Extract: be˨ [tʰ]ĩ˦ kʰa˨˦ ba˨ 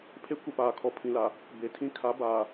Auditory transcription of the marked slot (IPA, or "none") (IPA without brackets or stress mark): tʰ